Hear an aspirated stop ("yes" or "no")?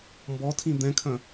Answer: yes